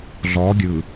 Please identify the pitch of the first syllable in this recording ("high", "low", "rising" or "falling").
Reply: rising